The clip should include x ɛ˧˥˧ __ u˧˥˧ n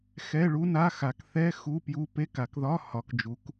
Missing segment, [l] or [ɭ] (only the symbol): ɭ